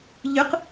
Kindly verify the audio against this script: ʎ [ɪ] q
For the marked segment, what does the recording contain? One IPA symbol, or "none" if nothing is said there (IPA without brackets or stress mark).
ɨ